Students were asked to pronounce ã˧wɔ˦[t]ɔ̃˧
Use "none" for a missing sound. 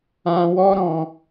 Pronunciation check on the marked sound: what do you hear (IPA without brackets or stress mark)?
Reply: ɾ